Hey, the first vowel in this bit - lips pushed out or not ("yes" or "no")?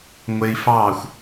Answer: no